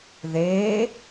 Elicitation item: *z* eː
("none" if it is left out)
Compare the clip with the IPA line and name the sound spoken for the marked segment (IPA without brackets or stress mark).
ð